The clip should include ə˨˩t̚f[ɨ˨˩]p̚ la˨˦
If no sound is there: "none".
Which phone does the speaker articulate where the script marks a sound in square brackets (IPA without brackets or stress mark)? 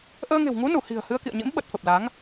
ə˨˩